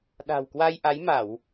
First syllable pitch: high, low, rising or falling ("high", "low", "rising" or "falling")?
low